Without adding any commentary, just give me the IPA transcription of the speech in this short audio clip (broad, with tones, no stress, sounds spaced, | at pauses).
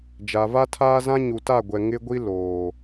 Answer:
d͡ʒ a˨ v a˦ tʰ aː˦ z ã˦ ɲ u˨ t a˦˨ ɡʷ ɛ˨ ŋ ɪ˦ ɡʷ i˦ l oː˨